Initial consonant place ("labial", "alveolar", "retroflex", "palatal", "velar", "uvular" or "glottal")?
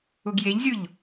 velar